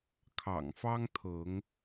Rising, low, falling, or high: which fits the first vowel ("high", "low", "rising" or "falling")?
low